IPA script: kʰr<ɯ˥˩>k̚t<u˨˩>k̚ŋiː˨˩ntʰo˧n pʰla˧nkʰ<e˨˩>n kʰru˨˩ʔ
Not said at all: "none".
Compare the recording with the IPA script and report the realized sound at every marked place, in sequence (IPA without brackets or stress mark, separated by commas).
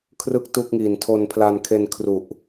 ɯ˥˩, u˥˩, e˧